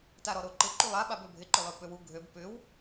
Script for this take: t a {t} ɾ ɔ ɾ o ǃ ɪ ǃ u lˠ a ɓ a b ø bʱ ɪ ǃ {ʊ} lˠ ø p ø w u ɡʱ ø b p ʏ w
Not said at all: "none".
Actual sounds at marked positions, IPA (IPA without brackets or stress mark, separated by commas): none, ʊ